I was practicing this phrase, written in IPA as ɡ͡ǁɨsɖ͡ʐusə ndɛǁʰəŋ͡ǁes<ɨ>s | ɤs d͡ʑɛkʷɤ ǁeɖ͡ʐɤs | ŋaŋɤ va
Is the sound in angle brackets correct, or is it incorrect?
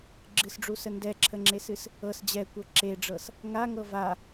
correct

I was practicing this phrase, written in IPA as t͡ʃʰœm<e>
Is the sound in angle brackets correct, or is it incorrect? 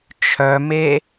correct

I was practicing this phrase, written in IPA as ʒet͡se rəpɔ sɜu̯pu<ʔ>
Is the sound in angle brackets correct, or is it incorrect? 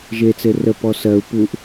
correct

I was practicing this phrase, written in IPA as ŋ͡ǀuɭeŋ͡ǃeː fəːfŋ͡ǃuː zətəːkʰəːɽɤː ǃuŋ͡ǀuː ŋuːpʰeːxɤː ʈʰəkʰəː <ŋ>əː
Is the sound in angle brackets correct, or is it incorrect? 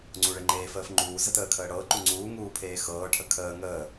correct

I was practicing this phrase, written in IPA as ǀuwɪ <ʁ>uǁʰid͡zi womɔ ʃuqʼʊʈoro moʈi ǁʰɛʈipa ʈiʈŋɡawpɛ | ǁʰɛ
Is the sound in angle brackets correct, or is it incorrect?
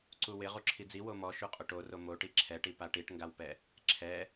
correct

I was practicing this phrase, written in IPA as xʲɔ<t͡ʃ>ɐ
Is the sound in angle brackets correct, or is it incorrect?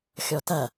incorrect: t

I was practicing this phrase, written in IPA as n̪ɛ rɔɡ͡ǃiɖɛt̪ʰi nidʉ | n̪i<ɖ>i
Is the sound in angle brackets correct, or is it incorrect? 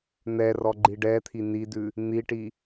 incorrect: ʈ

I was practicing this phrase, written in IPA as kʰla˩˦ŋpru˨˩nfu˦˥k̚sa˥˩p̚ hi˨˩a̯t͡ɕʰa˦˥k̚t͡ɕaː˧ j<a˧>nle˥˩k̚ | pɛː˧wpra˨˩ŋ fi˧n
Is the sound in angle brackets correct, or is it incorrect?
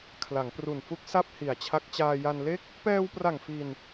correct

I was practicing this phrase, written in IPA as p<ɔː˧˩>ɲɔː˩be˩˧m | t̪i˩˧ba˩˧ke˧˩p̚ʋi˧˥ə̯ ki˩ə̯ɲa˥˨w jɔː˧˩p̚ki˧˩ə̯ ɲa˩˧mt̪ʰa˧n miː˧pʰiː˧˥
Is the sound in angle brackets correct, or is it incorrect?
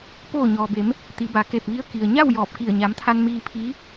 incorrect: oː˧˩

